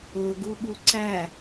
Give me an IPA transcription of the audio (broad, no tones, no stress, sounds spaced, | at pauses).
ʊ ɡ u ɓ u ǀ æ